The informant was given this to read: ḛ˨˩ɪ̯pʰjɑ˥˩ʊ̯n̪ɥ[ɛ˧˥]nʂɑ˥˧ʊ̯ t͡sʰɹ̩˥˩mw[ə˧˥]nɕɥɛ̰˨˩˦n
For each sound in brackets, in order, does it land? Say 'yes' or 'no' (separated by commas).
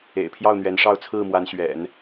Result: yes, no